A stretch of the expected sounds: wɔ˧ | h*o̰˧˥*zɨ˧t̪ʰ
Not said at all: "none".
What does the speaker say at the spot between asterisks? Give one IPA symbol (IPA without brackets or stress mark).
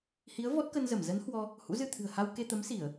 ṵ˧˥